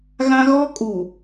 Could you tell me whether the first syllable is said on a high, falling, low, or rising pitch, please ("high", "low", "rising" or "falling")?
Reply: high